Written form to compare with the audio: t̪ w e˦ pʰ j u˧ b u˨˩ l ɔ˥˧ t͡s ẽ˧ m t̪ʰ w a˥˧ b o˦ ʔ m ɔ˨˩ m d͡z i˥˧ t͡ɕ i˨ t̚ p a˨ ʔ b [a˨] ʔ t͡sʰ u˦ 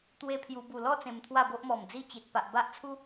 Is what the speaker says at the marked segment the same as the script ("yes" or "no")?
no